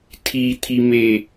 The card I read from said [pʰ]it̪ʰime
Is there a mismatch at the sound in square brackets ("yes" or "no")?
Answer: yes